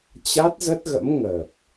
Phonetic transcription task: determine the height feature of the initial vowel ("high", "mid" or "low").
low